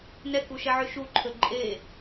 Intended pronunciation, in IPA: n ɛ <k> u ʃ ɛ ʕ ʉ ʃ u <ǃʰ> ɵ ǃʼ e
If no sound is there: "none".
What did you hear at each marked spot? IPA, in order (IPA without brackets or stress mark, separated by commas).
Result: k, ǃʰ